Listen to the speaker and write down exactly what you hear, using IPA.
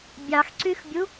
bʲɑxǀyxbʲu

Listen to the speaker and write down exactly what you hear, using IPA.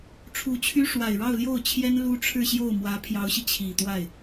ʈ͡ʂʰu˧˥t͡ɕʰy˥ ʂwa˨˩ɪ̯ɻɑ˥˧ʊ̯ljo˥˩ʊ̯ t͡ɕʰjɛ˥n lu˥ ʈ͡ʂʰɻ̩˥˧ɕjo˥˩ʊ̯ mwä˧˥pʰjɑ˧˥ʊ̯ɕi˧ t͡ɕʰi˨˩t̪wa˥˩ɪ̯

